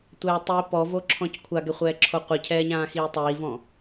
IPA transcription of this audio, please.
tʷ ɛː tˤ i p ɔ v o ǁʰ ɔ̃ c kʷʰ a ɡ ɛ χʷ ɛː ǁʰ o qʷ i cʰ ɛː ɲ ãː x iː tˤ iː v ɔ̃

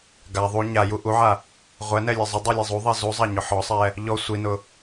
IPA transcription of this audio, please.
ɡ a ðˤ u ɲ a j u ʔ u ʕ a | ʁʷ ɛ n ɛ lʲ ɛ zˤ ʊ dˤ u lʲ ɛ zˤ u ðˤ i z u zˤ a ɲ ʊ ħ ɔ sˤ ɛ | ʎ ɔ sʷ i n ʊ

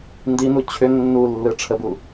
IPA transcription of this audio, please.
n d i n u t͡ɕʰ ʏ nː u lː ɯ ʈ͡ʂʰ ə b u

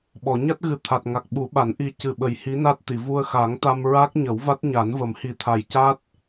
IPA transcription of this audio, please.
ɓ ɔ˨˩˨ ɲ a˦˥ t̚ ɣ ɨ˨˩ t̪ʰ a˨˩ t̚ ŋ a˨˩ k̚ ɓ u˨˩˦ ɓ a˨˩˦ n ʔ i˨˩ c ɨ˨˩ ɓ ə˨˩ j h i˧˥ n a˦˥ t̚ t̪ i˨˩˨ v u˧ ə̯ x a˨˩˦ ŋ t̪ a˧ m ɹ a˦˥ k̚ ɲ ə˨˩˦ w v a˦˥ t̚ ɲ a˨˩˦ n v ə˨˩˦ m h i˨˩ t̪ʰ a˨˩ j c a˦˥ t̚

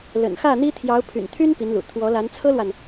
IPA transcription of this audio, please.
l ə̰˨˩ n x ä˥˩ n̪ i˥ t̪ʰ j ɑ˧˥ ʊ̯ pʰ y̰˨˩ n t̪ʰ y˥ n p i˧˥ n l ṵ˨˩ t̪ʰ w ɔ˧˥ l a˧˥ n t͡sʰ ɤ˥ l w a˨ n

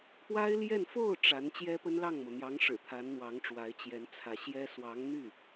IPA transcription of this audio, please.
pʰ w a˥ ɪ̯ l j ɛ˥˧ n f o˥˩ ʊ̯ ʈ͡ʂ a˧˥ n t͡ɕ j ɛ˥ p ə˥ n l ɑ˥˩ ŋ m ɤ˩ n̪ j ɑ˧˥ ŋ ʂ ɻ̩˨˩ t̪ʰ a˧˥ n n̪ w ɑ˧˥ ŋ ʈ͡ʂ w a˧˥ ɪ̯ t͡ɕ j ɛ˧˥ n t͡sʰ ä˧˥ ɕ j ɛ˥ s w ɑ˧˥ ŋ n̪ y˥˩

